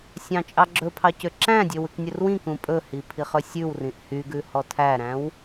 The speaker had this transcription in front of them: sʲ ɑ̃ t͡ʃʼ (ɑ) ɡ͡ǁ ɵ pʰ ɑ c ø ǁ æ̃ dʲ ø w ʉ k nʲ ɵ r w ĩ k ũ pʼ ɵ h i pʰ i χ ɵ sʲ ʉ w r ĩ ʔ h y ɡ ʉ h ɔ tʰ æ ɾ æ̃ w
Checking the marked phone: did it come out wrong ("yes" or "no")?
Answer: no